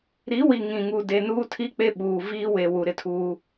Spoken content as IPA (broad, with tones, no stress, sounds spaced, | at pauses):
ɾ i˨˦ w i˨ ŋ ĩ˨ ŋ uː˨ d e˨ n uː˦ tʰ i˦ k͡p e˦ ɓ uː˨ v iː˦ w e˨ w u˨ ɾ ɪ˦ tʰ uː˦